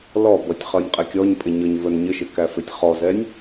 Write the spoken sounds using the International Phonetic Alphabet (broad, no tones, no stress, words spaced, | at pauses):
lɔbʌtʲ χʌnʲqʼɛkʲɔɲpʼɪ ɲə˞ɲvə˞nɲɪʃɪ kæfɪtʲχɔzɛnʲ